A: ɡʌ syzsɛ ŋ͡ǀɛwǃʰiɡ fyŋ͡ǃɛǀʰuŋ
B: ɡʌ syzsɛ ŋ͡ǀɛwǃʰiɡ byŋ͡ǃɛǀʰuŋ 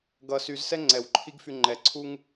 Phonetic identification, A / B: A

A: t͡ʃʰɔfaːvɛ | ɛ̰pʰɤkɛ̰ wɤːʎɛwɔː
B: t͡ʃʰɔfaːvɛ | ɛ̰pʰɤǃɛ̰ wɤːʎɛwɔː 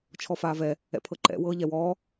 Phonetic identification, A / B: B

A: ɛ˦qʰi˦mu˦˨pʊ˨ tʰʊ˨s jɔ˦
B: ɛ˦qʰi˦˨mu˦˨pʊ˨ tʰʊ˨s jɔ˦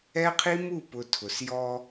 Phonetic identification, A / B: A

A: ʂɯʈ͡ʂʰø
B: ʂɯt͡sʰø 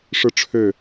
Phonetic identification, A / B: A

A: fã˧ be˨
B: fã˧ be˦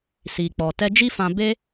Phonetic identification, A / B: B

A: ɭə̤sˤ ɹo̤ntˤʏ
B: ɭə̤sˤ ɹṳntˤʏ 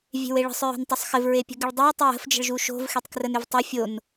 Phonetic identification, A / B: A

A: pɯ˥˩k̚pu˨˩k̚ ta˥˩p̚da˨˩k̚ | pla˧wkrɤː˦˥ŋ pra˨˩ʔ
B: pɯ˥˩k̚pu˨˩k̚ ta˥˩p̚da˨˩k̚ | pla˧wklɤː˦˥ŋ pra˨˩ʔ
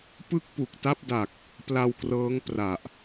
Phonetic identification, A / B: A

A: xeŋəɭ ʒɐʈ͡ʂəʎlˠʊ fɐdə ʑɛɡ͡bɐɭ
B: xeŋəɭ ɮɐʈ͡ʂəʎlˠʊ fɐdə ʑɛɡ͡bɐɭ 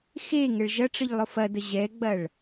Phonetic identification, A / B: A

